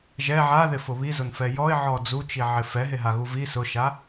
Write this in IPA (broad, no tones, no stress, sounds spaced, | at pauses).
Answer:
ʒ ɛ ʕ a ð ɪ f ʊ β i z ʊ n f ɛ j ɔ ɪ̯ ʕ ɔ d͡z u t͡ʃ i ʕ ɪ f ɛ ɦ e ɦ a ɣ u v i s ʊ ʃ a